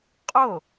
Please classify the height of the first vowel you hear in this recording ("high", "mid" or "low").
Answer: mid